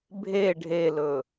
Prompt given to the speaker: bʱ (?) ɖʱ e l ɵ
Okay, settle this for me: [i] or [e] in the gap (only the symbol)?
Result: e